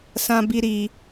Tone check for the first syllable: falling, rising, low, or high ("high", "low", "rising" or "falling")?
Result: high